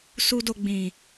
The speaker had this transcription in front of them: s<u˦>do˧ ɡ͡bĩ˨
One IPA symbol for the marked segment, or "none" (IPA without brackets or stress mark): u˦